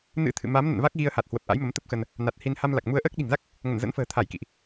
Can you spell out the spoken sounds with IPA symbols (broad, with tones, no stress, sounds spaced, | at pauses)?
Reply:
n ɨ̰˧˥ t̪ʰ ɨ̰˧˨ m a˨˦ m n ə̰˧˨ n v a˦˥ k̚ ɣ i˧ ə̯ h a˨˩ t̚ h w ə˨˩ p̚ ʔ a̰˧˥ j m ə˨˦ m t̪ ə˦˥ p̚ x ə˧ n | n a˨˩ t̚ h i˧ n h a˧ m l a˨˩ k̚ m u˧ ə̯ ʔ əː˦˥ k̚ ɗ i̤˨˩ ŋ z a˦˥ k̚ | ŋ ə˧˩ n z ə̰˧˥ n f ə̤ː˨˩ t̪ʰ a˧˩ j k ḭ˧˨ ʔ